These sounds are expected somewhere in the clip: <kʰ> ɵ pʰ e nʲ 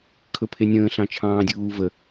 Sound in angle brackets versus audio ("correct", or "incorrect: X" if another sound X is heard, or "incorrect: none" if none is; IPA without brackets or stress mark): correct